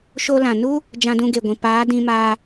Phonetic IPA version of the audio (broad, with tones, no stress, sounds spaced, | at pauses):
ʃ o˧ l ã˨ n u˦ | d͡ʒ ã˧ d ũ˧ ɡ e˨ ɡʷ ĩ˨ p aː˨˦ d ĩ˧ m aː˧